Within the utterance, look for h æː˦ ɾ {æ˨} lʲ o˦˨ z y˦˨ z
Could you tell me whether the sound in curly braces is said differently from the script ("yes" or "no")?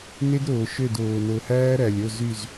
no